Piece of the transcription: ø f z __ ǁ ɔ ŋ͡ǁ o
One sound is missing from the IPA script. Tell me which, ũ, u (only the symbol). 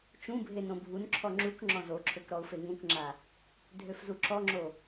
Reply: u